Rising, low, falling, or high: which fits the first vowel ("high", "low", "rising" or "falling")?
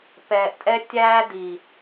low